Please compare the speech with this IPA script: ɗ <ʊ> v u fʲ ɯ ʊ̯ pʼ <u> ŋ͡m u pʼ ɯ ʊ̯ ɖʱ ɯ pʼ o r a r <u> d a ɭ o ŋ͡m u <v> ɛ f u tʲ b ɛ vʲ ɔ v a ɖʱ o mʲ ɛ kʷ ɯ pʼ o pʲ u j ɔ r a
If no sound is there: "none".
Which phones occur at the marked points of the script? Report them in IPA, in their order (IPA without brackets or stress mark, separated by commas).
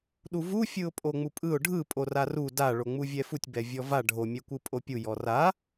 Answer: u, o, u, vʲ